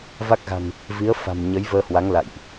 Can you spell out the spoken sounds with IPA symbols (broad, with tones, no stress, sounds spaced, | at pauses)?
v a˦˥ k̚ ɣ a̤˨˩ n | v i˨˦ ə̯ f a̤˨˩ m ɲ ə˨˦ j v əː˧ h w a˨˦ ŋ l a̰˧˨ j ʔ